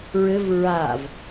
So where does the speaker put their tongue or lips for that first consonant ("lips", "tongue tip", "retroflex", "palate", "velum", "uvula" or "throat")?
tongue tip